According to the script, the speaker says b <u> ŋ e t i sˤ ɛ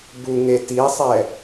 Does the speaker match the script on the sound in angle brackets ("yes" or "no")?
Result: yes